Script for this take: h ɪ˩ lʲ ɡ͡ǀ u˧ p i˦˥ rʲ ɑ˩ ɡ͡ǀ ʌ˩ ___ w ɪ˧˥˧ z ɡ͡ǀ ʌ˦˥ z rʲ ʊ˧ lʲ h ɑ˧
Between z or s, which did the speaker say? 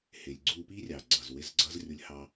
z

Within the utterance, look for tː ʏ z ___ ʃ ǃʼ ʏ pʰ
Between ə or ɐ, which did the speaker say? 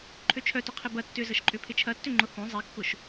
ə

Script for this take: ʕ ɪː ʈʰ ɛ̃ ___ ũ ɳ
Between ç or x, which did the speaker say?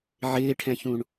ç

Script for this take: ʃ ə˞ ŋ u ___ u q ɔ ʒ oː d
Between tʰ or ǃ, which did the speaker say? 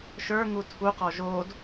tʰ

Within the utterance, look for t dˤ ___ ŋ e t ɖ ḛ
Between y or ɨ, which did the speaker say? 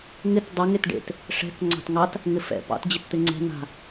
ɨ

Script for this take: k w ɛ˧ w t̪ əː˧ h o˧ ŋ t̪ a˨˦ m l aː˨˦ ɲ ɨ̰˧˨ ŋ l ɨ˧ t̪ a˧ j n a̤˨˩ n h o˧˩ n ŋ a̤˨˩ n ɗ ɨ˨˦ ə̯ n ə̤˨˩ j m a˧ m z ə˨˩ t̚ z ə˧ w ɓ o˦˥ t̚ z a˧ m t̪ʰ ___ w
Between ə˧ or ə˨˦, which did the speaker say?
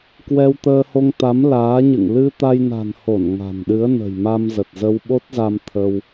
ə˧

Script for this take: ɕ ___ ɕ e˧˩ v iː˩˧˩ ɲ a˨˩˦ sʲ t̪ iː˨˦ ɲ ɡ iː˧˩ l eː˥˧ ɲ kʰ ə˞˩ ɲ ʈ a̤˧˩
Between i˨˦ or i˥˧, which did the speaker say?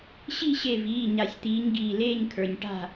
i˥˧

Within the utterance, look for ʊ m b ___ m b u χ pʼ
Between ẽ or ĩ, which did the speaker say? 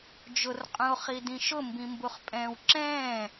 ĩ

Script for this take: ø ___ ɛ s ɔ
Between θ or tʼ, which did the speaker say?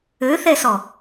θ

